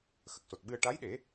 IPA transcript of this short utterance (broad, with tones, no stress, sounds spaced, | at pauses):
x ə˨˩ k̚ s o˨˩ t̚ ɓ ɨ˧ ə̯ ʈ a˧˥ j ɗ e˨˩˦